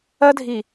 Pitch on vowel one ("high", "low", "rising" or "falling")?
high